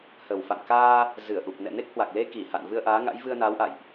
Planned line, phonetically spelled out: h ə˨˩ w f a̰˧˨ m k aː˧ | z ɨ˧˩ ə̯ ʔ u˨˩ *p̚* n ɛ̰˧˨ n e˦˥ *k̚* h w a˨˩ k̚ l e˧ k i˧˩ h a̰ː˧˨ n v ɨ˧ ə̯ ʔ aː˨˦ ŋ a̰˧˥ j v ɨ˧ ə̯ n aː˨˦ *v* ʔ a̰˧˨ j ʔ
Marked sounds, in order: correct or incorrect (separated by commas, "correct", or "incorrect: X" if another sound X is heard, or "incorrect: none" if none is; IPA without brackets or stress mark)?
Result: correct, correct, incorrect: w